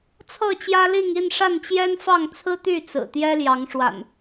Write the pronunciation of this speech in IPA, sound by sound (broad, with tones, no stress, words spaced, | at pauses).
t͡sʰɤ˥˨t͡ɕjä˦li˥˨ŋ i˥˨nʂa˥˨nt͡ɕjɛ˦nfɑ˥˨ŋ t͡sʰɹ̩˦t̪y˥˨t͡sɹ̩˨˩ t̪jɛ˦ljɑ˨˦ŋʂwa̰˨˩n